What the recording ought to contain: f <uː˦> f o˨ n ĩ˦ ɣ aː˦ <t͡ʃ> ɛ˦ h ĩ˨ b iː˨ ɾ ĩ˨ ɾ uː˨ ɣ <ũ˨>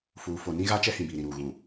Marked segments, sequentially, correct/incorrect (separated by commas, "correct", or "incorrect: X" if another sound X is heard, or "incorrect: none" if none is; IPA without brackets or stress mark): incorrect: uː˨, correct, correct